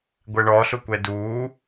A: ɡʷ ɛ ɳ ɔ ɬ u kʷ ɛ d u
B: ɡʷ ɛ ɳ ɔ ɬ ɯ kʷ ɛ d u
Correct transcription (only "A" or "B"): A